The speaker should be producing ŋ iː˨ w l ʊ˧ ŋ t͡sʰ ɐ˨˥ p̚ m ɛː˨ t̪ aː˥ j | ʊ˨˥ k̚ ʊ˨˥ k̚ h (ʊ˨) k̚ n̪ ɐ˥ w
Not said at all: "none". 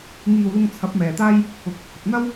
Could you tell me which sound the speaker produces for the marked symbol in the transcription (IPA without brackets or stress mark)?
ʊ˨